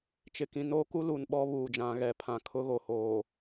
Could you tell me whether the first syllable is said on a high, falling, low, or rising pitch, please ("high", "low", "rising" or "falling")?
low